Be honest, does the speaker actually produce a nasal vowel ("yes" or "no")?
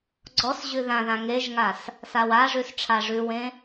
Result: yes